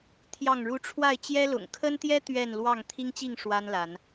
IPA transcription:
t̪ʰ j ɑ˥˨ ŋ ɻ u˦ ʈ͡ʂʰ w a˥˨ ɪ̯ t͡ɕ j ɛ˦ l ʊ̰˨˩ ŋ kʰ ə˦ n t̪ j ɛ˦ t̪ ɥ ɛ˥˨ n l w ɑ˥˨ ŋ t̪ʰ i˦ ŋ t͡ɕ i˥˨ ŋ ʂ w a˦ n l a˨˦ n

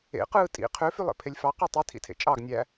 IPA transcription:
ḛ q ɯː tʼ ḭ qʰ ø f y lˠ ḛ pʰ e lʲ f ɑ q ø tˤ i tʰ ḭ tʰ ḛ t͡ʃʼ ɑ ɡ nʲ æ

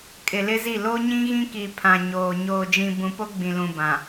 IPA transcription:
kʼ ɪ˨ l ɪ˦ z i˦˨ l o˦ ɲ ĩ˦ ɣ ĩ˦ k i˨ pʰ ã˨ ɲ oː˨ ɲ oː˨ d͡ʒ ĩ˨ b ũ˨ p o˦ ɡ͡b ĩ˨ l ũ˨ b ã˨

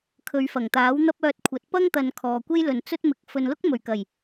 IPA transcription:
kʰ ɵ˨˧ ɥ f ɐ˨˩ ŋ t̪ aː˨˥ w n̪ ɐ˥ p̚ œː˧ t̚ kʷʰ ɐ˨˥ t̚ p ɐ˥ ŋ t̪ ɐ˨ n kʰ ɔː˨ kʷ e˥ j l ɵ˨ n t͡s ɵ˥ t̚ m ɪ˨˥ k̚ f ɵ˨ n l ʊ˥ k̚ m ɵ˨˩ ɥ k ɐ˨˩ j

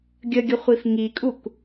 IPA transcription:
ɡʲ ə ɡʲ ə χʷ i f ŋ i kʼ u k

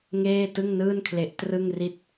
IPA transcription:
ŋ eː˥˩ t ɯ˥˩ ŋ n ɯː˥˩ n kʰ l e˦˥ ʔ t r ɯ˥˩ ŋ r i˥˩ t̚

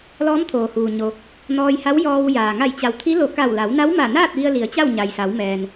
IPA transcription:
l ɔː˧˥ m t̪ʰ oː˩ h uː˩ ɲ o˩ | n ɔː˧ j h a˧˥ w j ɔː˧ w j aː˩ ŋ a˧˩ j t͡ɕ a˩ w t̪ʰ i˧˥ l o˧˩ k a˧˩ w l a˩˧ w n a˧˥ w m a˧˩ n aː˥˨ t̚ ʋ i˧ ə̯ l i˩˧ ə̯ t͡ɕ a˥˨ w ɲ a˩ j s a˩˧ w m ɛː˩ n

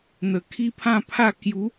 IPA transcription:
n̪ ə˨˩ kʰ i˦ pʰ ã˥˧ pʰ a˥˧ k j u˨˦

